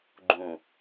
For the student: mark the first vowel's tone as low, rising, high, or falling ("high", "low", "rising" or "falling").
low